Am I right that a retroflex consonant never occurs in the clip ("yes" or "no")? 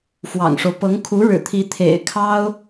no